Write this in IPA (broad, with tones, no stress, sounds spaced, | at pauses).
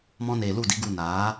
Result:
m ɔ̃˦ n eː˧ l u˦˨ d i˨˦ ɡ u˧ n aː˨˦